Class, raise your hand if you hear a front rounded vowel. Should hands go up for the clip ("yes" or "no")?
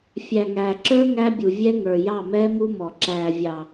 no